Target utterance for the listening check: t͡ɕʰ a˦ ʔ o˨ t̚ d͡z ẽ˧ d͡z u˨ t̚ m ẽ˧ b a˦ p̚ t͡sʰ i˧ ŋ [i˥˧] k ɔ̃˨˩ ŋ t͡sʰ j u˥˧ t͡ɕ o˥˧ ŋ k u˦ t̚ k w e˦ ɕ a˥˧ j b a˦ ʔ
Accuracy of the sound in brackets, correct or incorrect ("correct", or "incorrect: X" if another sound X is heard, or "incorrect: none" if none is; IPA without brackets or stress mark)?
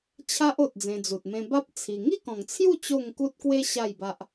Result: correct